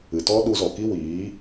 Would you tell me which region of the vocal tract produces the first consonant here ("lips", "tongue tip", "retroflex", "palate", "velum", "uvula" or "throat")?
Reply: tongue tip